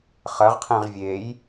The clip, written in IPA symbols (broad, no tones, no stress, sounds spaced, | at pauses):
χ ɐ ʁ qʰ ẽ ʁ vʲ e j